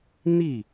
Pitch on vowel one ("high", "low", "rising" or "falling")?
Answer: falling